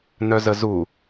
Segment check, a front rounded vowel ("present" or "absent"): present